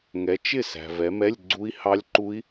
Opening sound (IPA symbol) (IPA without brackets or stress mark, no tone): ŋ